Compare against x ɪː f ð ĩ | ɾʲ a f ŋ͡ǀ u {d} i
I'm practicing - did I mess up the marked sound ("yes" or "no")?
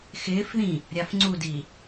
no